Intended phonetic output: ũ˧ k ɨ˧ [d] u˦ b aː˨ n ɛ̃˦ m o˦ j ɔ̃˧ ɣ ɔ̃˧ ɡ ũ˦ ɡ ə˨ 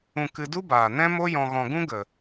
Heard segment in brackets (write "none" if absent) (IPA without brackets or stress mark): d